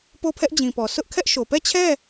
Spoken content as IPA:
p o˦˨ pʰ ɛ˦ ʔ d͡ʑ ĩ˨ p ɔ˨ s ʊ˦ ʔ kʰ ɛ˦ ʔ ʃ o˨ p ɛ˦˨ t͡ɕʰ ɛ˦˨

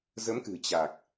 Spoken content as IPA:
z ə˨˦ m k ɨ̤˨˩ t͡ɕ a˨˩ k̚

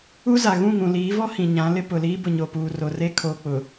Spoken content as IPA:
u˦ z a˨ ɣ ũ˦˨ ŋ ũ˨ l iː˨˦ v ɔ˦ h ĩ˨ ɲ ã˨˦ l ɪ˦ p ʊ˨ l iː˦ b ʊ˨ ɲ o˨ p uː˨ r o˨ r e˦ kʰ o˨ k͡p ʊ˨

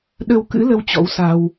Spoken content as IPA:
ɗ ə˧ w k ɨ̰˧˥ l ə˨˦ w t͡ɕ ɔ̰˧˥ w s a˧ w

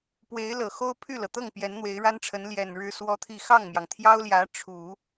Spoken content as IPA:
p w e˧˥ ɪ̯ l ɤ˨˩ x o˥ ʊ̯ pʰ y˥˩ l ɤ˩ t̪ ɤ˥˩ ŋ p j ɛ˧˥ n n̪ w e˧˥ ɪ̯ ɻ a˥ n ʈ͡ʂʰ ə˧˥ n l j ɛ˨˩ n ɻ ɻ̩˥ s w ɔ˥ t̪ʰ i˥˧ x ɑ˥˩ ŋ m j ɑ˩ ŋ t̪ʰ j ɑ˥ ʊ̯ l j ä˧˥ ʈ͡ʂʰ u˨˩˦

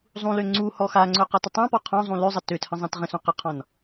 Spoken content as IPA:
zˤ ũ l ø ŋ͡ǀ u h ɔ x a ŋ͡ǀ ɵ q a t ə tˤ ã p ɔ qʰ ɔ̃ zˤ ũ l ø zˤ ə t ø t h ə̃ zˤ ã t ʁ ə̃ s ũ q ə qʰ ɔ̃ n

